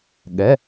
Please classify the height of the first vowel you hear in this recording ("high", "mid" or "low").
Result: mid